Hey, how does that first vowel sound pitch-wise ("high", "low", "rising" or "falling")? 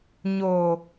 low